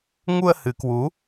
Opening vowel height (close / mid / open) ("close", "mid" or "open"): close